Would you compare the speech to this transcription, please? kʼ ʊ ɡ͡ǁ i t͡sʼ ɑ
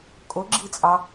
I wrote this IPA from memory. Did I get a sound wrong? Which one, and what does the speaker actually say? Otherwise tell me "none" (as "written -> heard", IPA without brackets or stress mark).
none